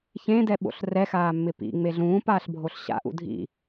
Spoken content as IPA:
ç ẽ d ɛ ɓ o̰ ɬ r ɛ x aː mː ɪ p ḭ ŋ͡m e ɮ ũː p aː ɬ bʱ o ɬ ɕ a̰ ʔ ṵ dʱ ḭ

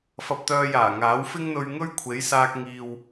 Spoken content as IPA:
f ɐ˧ p̚ t̪ œː˧ j aː˨˩ ŋ aː˨˥ w f ɪ˥ ŋ n̪ ɵ˧ ɥ ŋ ɵ˥ ɥ kʷʰ e˨˥ j s aː˧ k̚ ŋ iː˨ w

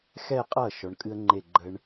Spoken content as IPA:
x ɛ˥˧ qʼ ʌ˥˩ ʃ ɔ˧˥ ɳ kʼ ɨ˥ ə̯ ŋ͡ǃ e˥˧ ɡ͡ǃ ə˥ ɳ

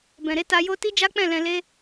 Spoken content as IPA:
b ɛ̃˨ ɾ e˨˦ t a˧ j o˦ t i˦ d͡ʒ a˦ k͡p ɛ̃˦˨ l ɛ̃˧ l e˦

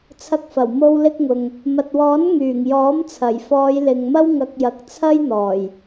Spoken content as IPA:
t͡sʰ ɐ˧ k̚ f ɐ˨˩ w m o˧ w l ɪ˧ k̚ ŋ ʊ˨ ŋ | m ɐ˨ t̚ w ɔː˨˥ n ŋ yː˨˩ ŋ j ɔː˨˥ m t͡sʰ ɐ˨˩ j f ɔː˨˧ j l ɪ˨ ŋ m ɐ˥ w ŋ ɐ˧ k̚ j ɐ˨˥ k̚ t͡sʰ ɐ˥ j n̪ ɔː˨˩ j

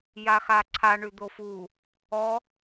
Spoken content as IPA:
j a x a ǀʰ a ɳ ʉ d̪ o f u | ɔ

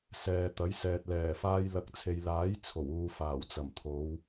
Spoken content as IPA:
s ɛː˨ t̪ ɐ˨˥ j s ɛː˨ t̚ l ɛː˨˩ f aː˧ j l ɐ˨˥ k̚ t͡sʰ e˨ j l aː˨˥ j t͡sʰ o˨˩ w uː˨ f aː˨˩ w t͡s ɐ˨˩ m t̪ʰ o˨˧ w

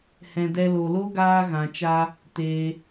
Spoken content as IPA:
h ɛ̃˨ d ɛ˧ l o˨ l o˦ ɡ aː˧ ɣ ã˨ t͡ʃ a˧ | t eː˧

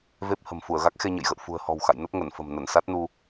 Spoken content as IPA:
v e˦˥ p̚ h ə̤˨˩ m f u˧˩ ə̯ ɣ a˦˥ k̚ x e˧ ɲ ə̰˧˨ j ɣ ə̰˧˨ w f ṳ˨˩ ə̯ h ɔ̤˨˩ w x a̰˧˨ j n ə˦˥ p̚ ŋ ə˧˩ n f ə̤˨˩ m n ə˧˩ n s a˦˥ t̚ n u˧

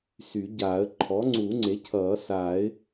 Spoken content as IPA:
s y˨˩˦ ɟ aː˨˩˦ ə̯ ǃʰ ɔː˩˥ ŋ͡ǀ uː˨˩˦ ŋ͡ǀ e˩˥ cʰ ʌː˨˩˦ s aː˨˩˦ ɪ̯

